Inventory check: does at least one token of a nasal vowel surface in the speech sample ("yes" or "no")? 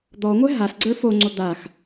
no